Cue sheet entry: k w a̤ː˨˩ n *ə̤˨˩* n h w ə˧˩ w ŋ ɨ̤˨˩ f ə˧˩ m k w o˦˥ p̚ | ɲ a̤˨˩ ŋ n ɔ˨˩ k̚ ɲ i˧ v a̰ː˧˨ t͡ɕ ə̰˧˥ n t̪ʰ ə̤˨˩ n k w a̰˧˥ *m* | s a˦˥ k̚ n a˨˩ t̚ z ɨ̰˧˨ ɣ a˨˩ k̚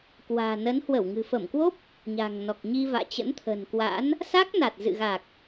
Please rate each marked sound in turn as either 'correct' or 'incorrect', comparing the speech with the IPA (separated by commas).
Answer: incorrect, incorrect